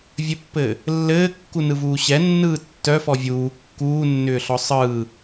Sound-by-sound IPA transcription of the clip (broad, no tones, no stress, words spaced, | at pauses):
vʲɘpːɘː | lːɘːkːunɯvuː ɕɛnːɯː tːœfɔ vʲuː kːuːnːʏːɬɔ sˤɯː